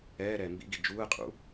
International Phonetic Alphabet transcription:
ɛː ɾ ɛː m b ḭ ɡ i d͡ʒ uː ə̯ qʼ ṵ

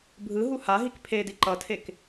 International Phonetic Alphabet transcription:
bʱ ɯ ɦ u h a ɦ i k pʰ e d i ǃ ʌ tʰ e k

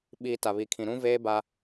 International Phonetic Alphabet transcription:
ɓ iː˨ t a˨ β i˨ kʰ ĩ˨ ɾ ũ˦ v eː˦ b a˦

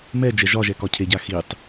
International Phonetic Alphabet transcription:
m ɛ d͡ʒ ɛ ʒ ɒ ʒ ɛ k ɒ cʰ e ɟ a x i tˤ

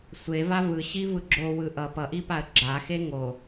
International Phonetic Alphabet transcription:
sʷ e v a v ɯ ɕ i v ɯ ɡ͡ǁ o w ɯ ʔ ʌ p ʌ ʔ i p a ə̯ ɡ͡ǁ a x e ŋ o

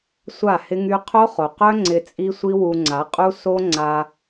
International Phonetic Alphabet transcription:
sʷ a˦˨ h ɪ˦ ŋ y˦ qʰ o˦ χ o˨ q œ˦ ŋ͡ǀ ɪ˧ t͡sʼ i˦ sʷ i˦ w u˧ ŋ͡ǀ a˨˦ qʼ u˦ s o˦ ŋ͡ǀ a˧

